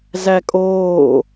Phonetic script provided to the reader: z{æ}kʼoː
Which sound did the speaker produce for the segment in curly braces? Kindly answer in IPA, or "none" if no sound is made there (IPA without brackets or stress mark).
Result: æ